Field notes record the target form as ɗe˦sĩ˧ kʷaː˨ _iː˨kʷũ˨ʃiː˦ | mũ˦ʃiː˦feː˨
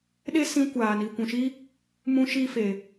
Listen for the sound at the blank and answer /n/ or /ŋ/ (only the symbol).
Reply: n